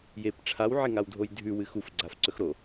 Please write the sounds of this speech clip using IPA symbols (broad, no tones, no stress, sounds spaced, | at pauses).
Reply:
j e p ʈ͡ʂʰ a w ʕ e ŋ a w dʱ o j dʱ ʉ w ɨ x u f ɡ͡ǀ a f ǀ ɵ x ɾ o